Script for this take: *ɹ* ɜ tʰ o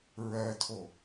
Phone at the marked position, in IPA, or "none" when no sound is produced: ɹ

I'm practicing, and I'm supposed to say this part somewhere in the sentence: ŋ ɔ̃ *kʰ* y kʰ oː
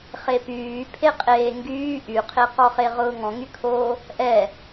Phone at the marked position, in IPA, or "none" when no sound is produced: ŋ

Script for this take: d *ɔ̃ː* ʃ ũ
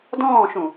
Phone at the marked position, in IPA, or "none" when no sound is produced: ɔ̃ː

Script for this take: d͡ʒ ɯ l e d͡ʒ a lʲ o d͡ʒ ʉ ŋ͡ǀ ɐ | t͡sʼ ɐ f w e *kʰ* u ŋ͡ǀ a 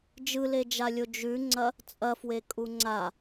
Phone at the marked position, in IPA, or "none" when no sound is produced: kʼ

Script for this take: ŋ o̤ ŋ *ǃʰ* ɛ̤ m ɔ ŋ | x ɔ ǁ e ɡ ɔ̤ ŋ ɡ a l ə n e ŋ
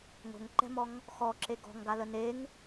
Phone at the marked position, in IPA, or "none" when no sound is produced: ǃ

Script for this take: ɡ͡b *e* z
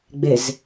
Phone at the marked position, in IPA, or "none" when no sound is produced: e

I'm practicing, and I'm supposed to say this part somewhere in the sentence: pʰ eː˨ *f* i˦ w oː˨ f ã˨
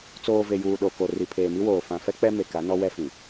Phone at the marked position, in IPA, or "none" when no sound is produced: m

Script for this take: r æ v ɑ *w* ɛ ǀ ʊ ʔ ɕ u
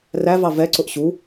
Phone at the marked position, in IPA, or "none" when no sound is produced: v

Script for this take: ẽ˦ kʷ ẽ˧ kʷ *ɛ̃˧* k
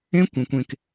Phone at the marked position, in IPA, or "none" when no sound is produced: ẽ˧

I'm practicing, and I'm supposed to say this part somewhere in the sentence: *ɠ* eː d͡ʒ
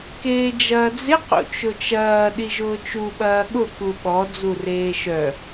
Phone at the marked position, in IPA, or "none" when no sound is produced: k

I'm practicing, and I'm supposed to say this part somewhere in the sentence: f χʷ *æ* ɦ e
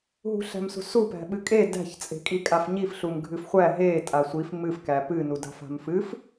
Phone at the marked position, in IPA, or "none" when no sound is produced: æ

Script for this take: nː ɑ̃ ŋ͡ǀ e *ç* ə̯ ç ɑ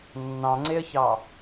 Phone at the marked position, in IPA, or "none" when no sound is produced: none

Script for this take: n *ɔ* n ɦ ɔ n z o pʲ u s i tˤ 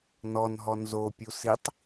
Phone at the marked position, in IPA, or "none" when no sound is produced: ɔ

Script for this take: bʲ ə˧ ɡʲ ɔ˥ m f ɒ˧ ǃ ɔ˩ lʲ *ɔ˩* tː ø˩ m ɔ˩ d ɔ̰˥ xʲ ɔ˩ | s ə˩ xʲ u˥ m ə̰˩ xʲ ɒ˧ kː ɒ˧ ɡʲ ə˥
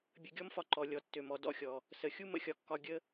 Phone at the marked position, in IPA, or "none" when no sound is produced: ɔ˩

